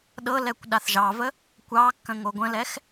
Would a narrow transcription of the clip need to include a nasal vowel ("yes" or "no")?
yes